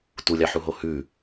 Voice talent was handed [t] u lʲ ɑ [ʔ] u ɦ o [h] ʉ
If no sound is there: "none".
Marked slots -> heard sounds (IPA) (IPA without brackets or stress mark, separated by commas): t, ħ, h